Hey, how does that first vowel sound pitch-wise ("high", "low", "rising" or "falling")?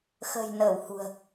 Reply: low